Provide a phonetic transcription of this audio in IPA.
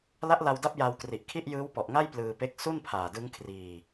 l a˦˥ ʔ l a˧ w d a˦˥ p̚ j a˧ w k r i˨˩ ʔ kʰ i˥˩ ʔ j ɯː˦˥ w p ɔ˨˩ ʔ ŋ a˥˩ j p l ɯː˧ p e˦˥ k̚ s u˥˩ n pʰ aː˨˩ d ɯ˦˥ ŋ kʰ r iː˧

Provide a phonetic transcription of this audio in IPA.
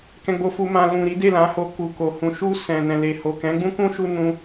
k ɛ̃˧ ɡ͡b o˧ f u˧ m ã˧ l ũ˨ ɾ i˨˦ d e˦˨ l ã˨˦ h o˧ k u˨ k o˨ h ũ˨ ʃ u˧ s ɛ̃˨ n ɛ̃˨ l e˨ h o˨ k ɛ̃˨˦ ɡ͡b ũ˦ k ũ˦ ʃ u˧ n ũ˧

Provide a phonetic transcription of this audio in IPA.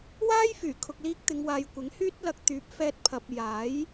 w aː˥ j f yː˨˩ kʰ ʊ˨ k̚ l iː˧ k̚ t̪ ɪ˨˧ ŋ w aː˨˧ j kʷ ɪ˨˥ ŋ h yː˥ t̚ l ɐ˧ k̚ t̪ yː˨˥ p̚ f ɛː˧ t̚ pʰ ɐ˨ p̚ j aː˨˥ j

